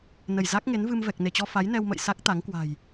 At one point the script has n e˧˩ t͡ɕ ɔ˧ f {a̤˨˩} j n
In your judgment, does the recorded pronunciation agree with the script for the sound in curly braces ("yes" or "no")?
no